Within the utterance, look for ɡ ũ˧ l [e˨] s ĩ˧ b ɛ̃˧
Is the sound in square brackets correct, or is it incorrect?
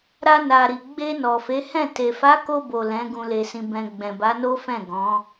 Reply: incorrect